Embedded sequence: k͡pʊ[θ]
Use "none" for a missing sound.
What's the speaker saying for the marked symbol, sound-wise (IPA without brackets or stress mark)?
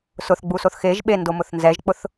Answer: θ